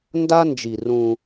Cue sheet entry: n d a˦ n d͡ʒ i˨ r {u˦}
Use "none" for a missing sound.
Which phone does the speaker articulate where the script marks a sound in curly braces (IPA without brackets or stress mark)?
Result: ũ˦